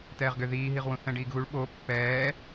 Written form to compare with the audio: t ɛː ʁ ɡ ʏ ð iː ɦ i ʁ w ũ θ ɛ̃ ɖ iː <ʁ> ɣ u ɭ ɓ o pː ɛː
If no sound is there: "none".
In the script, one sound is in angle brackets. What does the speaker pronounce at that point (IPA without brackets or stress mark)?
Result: ɡ